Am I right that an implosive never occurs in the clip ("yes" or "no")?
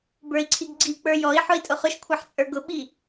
no